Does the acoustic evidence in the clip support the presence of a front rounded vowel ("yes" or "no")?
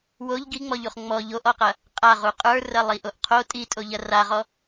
no